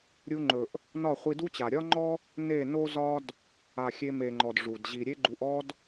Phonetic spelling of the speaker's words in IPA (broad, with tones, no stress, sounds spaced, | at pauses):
ɾʲ u˧ ŋ͡ǃ ɵ˨ ʔ | n ɒ˦˨ χʷ i˧ d u˦ t͡ɕ a˨ ɾʲ ɒ˦ ŋ͡ǃ ɔ˦ | n e˦˨ n o˦ z ɒ˦ d | a˨ xʲ e˧ m e˨ ŋ͡ǃ ɔ˨ d ʐ u˨ d ʑ i˨ ɾʲ e˦ ɡ͡ǃ u˧ ʔ ɔ˦ d